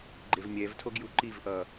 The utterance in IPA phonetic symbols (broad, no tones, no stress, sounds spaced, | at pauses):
ɡ͡ǃ e v mʲ ɛ v tʰ o ɡ j u ǃ i v ʔ ʌː